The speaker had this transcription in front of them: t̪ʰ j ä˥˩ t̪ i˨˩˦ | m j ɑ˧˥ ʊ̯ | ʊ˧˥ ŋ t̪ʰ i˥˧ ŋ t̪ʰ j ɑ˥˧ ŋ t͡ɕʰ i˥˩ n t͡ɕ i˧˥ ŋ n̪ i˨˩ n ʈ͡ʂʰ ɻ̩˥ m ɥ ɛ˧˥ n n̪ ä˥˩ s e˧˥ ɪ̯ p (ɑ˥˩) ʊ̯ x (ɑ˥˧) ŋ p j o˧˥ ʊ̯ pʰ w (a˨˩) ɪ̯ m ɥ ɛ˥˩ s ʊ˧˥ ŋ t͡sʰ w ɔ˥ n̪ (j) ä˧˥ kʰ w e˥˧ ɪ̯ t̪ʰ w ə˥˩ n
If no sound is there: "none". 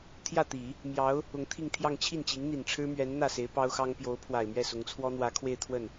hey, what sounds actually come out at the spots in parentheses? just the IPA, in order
ɑ˥, ɑ˥, a˨˩, w

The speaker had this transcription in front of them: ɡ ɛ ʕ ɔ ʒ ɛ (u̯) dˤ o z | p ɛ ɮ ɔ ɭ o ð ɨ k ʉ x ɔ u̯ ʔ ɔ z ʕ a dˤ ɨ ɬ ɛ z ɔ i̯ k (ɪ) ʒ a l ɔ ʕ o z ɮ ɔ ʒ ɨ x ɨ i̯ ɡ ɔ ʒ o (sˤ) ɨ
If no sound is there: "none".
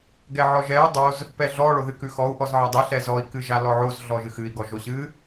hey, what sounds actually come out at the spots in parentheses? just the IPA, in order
u̯, ɨ, ɕ

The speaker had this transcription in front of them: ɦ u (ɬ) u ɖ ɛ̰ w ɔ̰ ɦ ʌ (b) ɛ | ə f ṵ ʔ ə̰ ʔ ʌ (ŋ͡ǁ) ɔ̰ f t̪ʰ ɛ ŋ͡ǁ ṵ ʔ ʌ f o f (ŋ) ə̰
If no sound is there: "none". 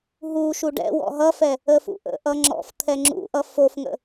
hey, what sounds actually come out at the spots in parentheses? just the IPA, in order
ʃ, f, ŋ͡ǁ, ŋ

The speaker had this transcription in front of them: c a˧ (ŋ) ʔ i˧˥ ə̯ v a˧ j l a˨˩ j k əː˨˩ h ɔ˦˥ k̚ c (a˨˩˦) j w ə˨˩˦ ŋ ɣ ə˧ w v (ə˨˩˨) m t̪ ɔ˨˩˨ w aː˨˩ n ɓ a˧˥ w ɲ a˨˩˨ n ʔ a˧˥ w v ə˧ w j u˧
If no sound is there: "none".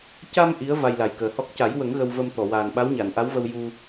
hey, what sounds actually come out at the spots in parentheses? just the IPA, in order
m, a˨˩˦, ə˧

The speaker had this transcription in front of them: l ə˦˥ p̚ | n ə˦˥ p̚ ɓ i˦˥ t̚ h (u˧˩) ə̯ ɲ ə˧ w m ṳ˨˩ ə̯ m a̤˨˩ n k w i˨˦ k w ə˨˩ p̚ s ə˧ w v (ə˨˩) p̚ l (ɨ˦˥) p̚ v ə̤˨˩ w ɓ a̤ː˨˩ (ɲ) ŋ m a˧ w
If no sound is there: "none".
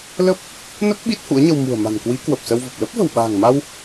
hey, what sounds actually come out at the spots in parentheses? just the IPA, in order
ṵ˧˥, ə˨˩, ə˦˥, none

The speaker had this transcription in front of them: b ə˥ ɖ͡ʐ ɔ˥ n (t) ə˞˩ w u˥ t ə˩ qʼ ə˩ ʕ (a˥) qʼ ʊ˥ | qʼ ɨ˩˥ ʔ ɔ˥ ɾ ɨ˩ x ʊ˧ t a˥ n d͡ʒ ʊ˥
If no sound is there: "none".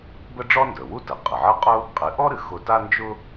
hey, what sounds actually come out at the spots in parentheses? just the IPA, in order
d, ə˥

